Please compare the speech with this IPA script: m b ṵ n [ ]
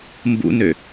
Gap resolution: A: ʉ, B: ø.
B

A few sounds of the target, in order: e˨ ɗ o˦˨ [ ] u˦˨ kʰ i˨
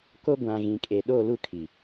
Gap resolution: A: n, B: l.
B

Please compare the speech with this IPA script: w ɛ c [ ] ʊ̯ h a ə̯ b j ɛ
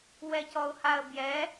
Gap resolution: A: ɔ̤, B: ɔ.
B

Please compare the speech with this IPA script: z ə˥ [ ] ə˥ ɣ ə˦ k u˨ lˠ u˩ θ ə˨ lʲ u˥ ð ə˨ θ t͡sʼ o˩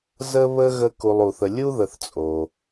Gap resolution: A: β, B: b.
A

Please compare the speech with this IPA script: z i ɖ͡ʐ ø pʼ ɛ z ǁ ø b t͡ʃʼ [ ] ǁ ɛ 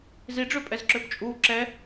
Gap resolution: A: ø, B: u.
B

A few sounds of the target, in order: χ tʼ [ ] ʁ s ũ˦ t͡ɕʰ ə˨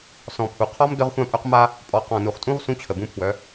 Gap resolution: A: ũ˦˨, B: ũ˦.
B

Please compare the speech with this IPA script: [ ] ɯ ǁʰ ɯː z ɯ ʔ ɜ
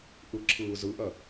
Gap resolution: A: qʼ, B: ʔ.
B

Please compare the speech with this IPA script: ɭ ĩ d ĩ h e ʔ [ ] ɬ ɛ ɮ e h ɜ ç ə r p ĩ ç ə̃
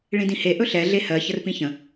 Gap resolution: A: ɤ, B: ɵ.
B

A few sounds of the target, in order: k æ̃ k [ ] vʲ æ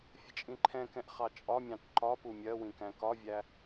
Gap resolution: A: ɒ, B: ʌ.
A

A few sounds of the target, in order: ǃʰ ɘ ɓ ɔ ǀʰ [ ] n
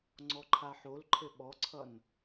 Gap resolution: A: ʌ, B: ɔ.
A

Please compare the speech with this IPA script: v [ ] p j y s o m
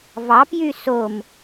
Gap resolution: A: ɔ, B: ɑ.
B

